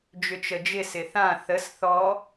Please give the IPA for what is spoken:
d͡ʒʏt͡ʃəd͡ʒɪ sɪθã θəs θɔ

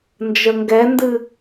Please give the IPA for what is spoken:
nd͡ʒəŋɡɛndɨ

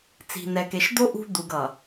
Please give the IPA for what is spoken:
t͡si̤˨nɛ˨ke˨ʃd̪o˦ ʔṳ˦d̪u˨ɡ ʌ˨

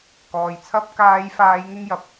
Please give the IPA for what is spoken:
kɔː˨j t͡sʰɐ˧p̚kaː˨˧jfaː˨˧j ŋɪ˥ŋjɐ˨p̚

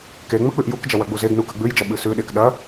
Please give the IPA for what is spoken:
ke ŋ͡mɵk͡pʉʔjukd͡ʒɐ wɐɡ͡buzeɡnu kɐɡ͡bʉjd͡ʒɐ ɓɨsʉɗek ɗɐ

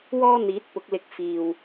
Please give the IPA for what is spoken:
wɔː˥ n̪iː˨˥t̚pʊ˨˥k̚lɪ˧k̚ fiː˨w

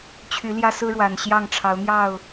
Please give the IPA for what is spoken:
t͡ɕʰy˨˦ljä˦sɹ̩˦ ɻwa˨˩nɕjɑ˥˨ŋʈ͡ʂʰɑ˨˦ʊ̯ n̪jɑ˥˨ʊ̯

